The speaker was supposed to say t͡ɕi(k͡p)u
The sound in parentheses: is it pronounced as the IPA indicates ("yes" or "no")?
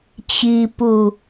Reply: no